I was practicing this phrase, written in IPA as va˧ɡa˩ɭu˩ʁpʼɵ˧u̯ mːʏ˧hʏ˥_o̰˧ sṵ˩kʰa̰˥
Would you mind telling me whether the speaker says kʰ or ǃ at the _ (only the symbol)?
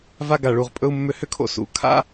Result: kʰ